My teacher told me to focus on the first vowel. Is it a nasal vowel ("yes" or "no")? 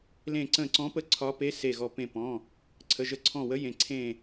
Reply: yes